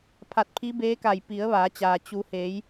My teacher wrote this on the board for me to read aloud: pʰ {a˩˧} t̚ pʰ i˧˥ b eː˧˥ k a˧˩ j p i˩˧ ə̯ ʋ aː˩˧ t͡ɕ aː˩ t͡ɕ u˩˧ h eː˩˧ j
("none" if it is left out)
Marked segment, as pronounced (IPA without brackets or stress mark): a˧˩